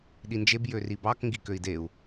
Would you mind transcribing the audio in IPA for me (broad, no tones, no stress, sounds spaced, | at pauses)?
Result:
ɗ i n d͡ʒ e b j ø r i b ɑ k ŋ ɡ i k ø i̯ d e u̯